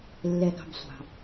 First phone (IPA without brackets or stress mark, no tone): lː